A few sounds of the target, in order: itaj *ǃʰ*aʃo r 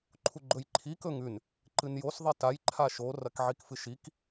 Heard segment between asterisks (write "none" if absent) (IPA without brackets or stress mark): ǃʰ